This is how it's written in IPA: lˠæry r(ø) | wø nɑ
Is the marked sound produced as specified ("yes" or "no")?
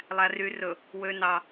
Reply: no